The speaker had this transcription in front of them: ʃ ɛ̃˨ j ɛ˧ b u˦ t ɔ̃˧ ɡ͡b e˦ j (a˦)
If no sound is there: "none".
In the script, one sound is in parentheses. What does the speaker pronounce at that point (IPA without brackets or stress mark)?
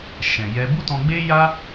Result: a˦